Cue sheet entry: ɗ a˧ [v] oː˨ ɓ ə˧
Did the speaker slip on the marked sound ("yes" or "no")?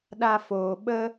yes